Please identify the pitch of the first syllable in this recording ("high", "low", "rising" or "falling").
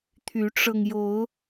rising